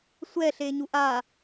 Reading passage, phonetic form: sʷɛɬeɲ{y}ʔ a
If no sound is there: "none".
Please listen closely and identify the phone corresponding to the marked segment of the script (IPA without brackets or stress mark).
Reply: u